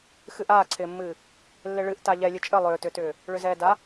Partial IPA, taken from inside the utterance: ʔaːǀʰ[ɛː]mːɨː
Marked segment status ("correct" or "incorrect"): incorrect